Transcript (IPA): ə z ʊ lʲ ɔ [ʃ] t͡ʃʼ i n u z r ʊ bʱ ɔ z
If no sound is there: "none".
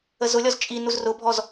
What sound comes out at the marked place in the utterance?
z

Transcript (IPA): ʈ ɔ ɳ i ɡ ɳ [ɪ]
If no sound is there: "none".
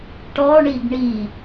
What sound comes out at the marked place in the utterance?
i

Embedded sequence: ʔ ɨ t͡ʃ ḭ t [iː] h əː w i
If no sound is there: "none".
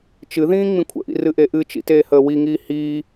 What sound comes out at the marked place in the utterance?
eː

